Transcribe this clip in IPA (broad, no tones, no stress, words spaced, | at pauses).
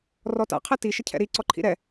rɔta̰qʰɛ tiʃəcʰɛ̰ ɾi ǀɔǃʰḭɾɛ